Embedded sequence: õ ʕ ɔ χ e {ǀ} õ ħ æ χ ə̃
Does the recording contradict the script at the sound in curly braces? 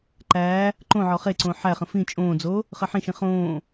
no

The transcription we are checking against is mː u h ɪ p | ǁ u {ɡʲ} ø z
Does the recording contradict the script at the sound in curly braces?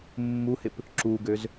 yes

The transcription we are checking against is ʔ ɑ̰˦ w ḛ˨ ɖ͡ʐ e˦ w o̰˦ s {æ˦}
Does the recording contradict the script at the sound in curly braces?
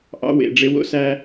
no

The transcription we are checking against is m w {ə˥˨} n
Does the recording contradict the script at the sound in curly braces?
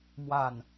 yes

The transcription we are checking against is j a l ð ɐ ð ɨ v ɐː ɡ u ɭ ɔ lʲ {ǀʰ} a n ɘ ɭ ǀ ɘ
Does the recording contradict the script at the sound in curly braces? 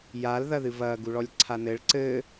no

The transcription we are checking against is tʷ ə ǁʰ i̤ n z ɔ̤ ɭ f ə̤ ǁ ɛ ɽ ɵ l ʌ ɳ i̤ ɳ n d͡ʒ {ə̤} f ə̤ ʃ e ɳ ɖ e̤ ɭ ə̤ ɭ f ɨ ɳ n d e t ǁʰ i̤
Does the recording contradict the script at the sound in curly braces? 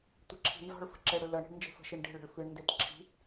yes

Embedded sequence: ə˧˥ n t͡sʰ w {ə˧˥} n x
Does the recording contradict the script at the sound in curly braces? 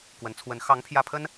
no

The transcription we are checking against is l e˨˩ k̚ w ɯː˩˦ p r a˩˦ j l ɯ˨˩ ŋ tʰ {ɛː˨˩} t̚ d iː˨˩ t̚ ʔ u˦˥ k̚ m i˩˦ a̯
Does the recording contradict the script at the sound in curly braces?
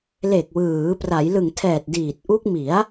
no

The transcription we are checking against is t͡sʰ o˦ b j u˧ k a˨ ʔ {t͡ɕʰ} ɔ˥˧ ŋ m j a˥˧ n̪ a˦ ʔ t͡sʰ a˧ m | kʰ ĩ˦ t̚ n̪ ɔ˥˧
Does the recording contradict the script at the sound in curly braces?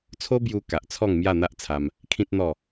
yes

